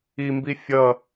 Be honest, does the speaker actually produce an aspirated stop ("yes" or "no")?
no